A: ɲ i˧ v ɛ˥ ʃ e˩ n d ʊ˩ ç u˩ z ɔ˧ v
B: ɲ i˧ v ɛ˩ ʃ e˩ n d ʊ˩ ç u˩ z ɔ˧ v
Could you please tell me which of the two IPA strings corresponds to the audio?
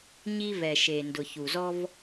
B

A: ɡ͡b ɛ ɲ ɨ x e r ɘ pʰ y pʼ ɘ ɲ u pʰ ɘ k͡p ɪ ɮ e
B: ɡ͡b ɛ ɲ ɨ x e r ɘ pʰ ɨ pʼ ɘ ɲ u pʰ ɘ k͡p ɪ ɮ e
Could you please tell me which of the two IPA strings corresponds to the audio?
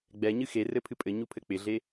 B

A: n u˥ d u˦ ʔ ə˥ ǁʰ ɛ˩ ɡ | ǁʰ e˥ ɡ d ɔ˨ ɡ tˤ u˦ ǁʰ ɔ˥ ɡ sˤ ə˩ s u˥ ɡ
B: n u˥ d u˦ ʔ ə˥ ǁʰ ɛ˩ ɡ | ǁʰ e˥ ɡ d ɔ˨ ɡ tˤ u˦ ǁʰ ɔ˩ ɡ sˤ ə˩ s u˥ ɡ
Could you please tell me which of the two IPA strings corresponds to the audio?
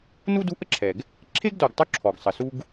B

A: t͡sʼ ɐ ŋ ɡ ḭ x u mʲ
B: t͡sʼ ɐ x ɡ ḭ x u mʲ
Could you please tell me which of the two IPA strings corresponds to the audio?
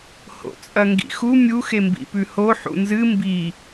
A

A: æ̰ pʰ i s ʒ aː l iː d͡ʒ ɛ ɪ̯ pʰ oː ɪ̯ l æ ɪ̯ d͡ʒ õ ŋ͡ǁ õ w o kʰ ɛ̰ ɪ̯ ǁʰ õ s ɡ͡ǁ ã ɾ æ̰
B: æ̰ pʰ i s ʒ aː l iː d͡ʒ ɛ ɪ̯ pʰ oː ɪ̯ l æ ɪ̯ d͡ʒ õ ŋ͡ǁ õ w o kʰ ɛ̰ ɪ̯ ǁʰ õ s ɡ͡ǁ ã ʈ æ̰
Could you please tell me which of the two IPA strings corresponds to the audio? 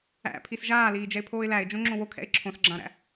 A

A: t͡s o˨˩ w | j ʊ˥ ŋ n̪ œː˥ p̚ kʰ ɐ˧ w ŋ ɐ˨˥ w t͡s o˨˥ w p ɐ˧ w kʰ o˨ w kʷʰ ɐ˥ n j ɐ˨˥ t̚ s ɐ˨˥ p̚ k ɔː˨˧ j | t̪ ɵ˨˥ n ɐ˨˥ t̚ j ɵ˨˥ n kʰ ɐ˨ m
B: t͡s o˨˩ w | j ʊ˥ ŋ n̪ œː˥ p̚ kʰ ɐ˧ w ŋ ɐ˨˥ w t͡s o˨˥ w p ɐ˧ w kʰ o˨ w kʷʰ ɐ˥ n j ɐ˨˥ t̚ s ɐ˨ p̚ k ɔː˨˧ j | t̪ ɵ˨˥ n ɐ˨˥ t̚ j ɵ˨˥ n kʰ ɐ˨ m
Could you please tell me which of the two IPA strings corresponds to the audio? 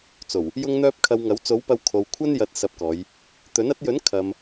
A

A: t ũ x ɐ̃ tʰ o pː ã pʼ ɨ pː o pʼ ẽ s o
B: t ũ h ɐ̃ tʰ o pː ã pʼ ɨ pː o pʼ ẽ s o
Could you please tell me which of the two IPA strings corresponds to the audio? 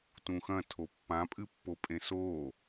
A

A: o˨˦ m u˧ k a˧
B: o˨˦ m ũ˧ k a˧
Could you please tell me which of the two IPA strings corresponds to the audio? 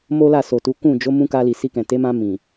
B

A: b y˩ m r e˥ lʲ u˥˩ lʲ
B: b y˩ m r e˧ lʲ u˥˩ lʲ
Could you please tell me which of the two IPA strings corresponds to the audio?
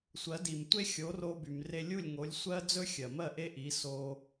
B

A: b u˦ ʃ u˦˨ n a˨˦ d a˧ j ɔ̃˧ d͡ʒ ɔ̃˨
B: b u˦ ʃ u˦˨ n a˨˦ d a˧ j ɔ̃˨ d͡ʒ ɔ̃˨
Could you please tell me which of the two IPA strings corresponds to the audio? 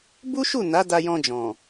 A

